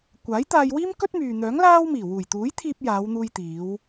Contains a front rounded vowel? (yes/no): yes